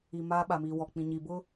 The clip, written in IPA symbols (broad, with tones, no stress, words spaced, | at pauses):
i˨ maː˦ɓa˨miː˨ wɔ˨k͡pĩ˨ ɲi˨bʊ˦